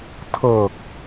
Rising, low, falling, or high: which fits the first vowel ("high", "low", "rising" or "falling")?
low